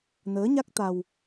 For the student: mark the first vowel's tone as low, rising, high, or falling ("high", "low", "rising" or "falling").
rising